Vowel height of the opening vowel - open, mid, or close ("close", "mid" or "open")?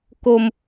mid